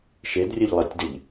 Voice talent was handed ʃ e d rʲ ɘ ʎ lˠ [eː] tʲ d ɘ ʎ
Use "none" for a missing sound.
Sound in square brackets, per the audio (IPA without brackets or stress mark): e